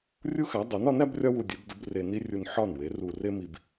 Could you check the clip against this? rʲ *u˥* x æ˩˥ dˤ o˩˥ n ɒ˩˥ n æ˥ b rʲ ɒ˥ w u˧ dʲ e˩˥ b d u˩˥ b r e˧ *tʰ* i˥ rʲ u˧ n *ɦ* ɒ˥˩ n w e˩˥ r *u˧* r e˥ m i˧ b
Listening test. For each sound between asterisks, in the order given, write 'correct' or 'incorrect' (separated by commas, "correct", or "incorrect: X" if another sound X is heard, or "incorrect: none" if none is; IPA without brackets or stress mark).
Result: correct, incorrect: n, incorrect: ħ, correct